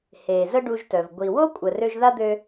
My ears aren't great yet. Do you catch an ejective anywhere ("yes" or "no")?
yes